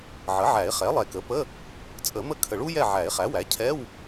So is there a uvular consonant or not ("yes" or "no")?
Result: yes